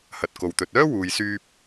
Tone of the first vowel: low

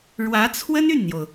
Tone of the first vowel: rising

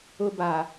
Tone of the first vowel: low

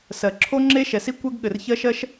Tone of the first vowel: low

